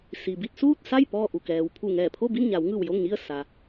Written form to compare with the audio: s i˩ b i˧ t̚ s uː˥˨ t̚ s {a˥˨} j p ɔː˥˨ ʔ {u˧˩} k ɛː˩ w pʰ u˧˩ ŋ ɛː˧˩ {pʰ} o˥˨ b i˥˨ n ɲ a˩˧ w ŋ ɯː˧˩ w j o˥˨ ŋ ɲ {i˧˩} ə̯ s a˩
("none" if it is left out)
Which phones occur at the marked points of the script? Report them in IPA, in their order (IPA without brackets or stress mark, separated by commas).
a˥˨, u˧˩, pʰ, i˥˨